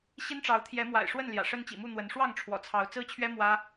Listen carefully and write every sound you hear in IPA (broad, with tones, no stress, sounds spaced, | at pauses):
ɕ i˦ n ʈ͡ʂ ɑ˨˦ ʊ̯ t̪ʰ j ɛ˨˦ m w a̰˨˩ ɪ̯ ʂ w ə˥˨ n l j ä̰˨˩ ʂ ə˦ n t͡ɕ ḭ˨˩ m u˥˨ n̪ w ə˨˦ n ʂ w ɑ˥˨ ŋ ʈ͡ʂʰ w ɔ̰˨˩ t͡sʰ ɑ˨˦ ʊ̯ t͡s ɹ̩˦ t͡ɕʰ ɥ ɛ˦ m w ä˦